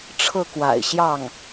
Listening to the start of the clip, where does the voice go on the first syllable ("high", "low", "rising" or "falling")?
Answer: falling